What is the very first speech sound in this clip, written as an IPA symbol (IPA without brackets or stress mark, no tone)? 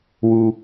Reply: w